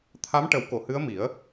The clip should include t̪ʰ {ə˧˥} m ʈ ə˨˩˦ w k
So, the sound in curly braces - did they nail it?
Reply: no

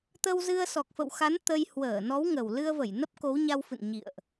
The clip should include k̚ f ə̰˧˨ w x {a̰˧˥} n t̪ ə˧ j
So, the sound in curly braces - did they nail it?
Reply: no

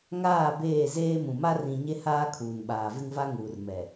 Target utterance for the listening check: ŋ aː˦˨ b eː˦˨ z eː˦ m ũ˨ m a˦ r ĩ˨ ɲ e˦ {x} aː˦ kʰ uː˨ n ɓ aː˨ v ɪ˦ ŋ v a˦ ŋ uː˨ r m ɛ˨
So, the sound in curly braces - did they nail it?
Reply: no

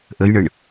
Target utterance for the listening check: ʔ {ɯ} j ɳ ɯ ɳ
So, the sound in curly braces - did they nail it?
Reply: no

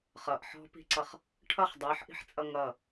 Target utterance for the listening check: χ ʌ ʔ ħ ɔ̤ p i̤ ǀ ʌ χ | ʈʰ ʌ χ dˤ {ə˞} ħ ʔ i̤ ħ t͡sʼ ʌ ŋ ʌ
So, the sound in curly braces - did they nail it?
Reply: yes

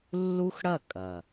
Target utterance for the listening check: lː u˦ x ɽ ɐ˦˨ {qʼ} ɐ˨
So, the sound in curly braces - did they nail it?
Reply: no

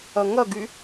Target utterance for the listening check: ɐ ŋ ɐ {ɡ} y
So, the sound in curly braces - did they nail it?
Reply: yes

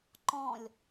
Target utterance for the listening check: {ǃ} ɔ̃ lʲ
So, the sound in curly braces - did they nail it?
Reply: yes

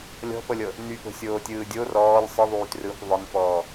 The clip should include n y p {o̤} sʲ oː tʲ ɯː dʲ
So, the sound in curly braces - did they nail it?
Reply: yes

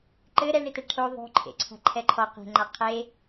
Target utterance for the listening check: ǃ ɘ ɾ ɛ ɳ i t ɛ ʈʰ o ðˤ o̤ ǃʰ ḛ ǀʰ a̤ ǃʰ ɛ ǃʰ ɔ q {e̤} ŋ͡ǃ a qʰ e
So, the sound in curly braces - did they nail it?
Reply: yes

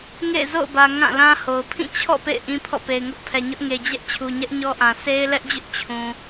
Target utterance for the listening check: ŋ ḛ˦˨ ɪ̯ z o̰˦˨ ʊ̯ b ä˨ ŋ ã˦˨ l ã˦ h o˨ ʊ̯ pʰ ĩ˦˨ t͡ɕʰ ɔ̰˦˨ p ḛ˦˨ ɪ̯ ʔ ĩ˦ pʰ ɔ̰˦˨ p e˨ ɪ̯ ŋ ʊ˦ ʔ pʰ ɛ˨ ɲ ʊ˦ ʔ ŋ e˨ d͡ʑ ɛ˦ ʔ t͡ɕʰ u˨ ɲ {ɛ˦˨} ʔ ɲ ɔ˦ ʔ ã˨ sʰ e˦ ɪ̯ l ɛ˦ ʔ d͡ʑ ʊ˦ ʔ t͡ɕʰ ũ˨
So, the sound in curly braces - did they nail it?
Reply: no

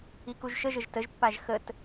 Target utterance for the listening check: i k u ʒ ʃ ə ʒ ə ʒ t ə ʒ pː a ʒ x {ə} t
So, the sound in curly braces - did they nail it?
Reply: yes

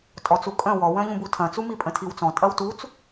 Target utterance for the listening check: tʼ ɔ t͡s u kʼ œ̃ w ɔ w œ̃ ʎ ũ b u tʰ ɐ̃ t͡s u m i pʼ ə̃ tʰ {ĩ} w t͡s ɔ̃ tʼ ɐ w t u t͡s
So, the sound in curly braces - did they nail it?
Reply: no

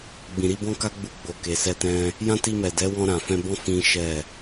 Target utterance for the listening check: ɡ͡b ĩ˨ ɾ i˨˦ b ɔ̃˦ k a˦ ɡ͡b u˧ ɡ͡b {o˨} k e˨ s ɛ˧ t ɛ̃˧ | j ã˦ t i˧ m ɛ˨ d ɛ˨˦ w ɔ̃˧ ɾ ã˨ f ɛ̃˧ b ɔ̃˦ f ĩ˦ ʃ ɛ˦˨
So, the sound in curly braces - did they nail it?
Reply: yes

